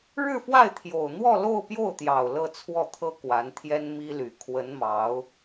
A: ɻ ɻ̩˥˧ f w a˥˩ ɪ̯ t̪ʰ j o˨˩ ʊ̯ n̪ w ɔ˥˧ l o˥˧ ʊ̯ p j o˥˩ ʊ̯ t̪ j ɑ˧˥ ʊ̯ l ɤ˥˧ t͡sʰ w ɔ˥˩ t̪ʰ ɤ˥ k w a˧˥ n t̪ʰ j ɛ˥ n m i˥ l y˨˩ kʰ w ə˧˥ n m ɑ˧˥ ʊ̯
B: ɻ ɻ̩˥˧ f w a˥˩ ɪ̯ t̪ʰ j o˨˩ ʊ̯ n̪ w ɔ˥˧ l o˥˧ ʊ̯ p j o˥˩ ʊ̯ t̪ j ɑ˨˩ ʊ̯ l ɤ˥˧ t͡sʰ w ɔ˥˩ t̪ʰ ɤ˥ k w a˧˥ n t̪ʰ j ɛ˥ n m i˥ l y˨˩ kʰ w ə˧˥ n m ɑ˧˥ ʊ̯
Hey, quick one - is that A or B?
B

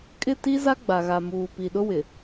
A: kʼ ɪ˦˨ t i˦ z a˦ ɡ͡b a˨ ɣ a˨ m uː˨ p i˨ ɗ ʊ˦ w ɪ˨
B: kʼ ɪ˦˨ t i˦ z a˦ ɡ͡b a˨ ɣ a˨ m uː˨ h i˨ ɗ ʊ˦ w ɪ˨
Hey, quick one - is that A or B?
A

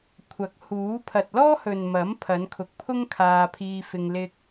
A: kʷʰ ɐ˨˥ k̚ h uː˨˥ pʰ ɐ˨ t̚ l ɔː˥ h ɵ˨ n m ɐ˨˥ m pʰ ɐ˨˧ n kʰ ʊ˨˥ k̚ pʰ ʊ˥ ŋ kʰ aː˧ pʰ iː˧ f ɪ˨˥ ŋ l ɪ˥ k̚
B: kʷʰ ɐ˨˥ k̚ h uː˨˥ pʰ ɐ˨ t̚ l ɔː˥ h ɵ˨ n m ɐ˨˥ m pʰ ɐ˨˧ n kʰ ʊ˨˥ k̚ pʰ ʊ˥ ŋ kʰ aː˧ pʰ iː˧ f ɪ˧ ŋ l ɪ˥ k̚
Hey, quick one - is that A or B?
B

